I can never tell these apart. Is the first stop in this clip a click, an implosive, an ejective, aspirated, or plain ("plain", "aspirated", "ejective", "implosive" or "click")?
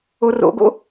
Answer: plain